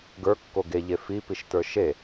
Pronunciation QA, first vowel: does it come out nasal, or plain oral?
oral